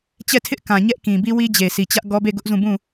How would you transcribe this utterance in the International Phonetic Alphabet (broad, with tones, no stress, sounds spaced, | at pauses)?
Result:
t͡ɕ ɛ˦˨ tʰ ɪ˦ ʔ k ã˨ ɲ ɛ˦ ʔ k ĩ˨ b i˦ w i˦ d͡ʑ e˨ sʰ i˨ t͡ɕ ä˦ ʔ ɡ ɔ˦ b e˦˨ ɡ ʊ˦ ʔ z ũ˦˨ b ũ˦˨